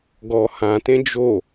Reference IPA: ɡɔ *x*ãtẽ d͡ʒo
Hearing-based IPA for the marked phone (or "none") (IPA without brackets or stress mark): h